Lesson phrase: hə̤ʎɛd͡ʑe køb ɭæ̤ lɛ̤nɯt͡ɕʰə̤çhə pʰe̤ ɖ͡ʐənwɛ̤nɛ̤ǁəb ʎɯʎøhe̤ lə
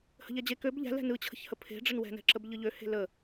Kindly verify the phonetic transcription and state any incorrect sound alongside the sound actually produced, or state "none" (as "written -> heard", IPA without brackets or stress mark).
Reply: ɭ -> ʎ